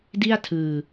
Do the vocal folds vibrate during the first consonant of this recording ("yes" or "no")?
yes